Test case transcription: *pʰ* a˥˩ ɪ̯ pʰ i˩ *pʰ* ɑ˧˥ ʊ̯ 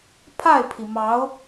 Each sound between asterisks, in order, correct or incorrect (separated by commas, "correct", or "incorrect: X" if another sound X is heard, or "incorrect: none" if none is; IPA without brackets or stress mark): correct, incorrect: m